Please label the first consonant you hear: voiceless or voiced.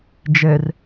voiced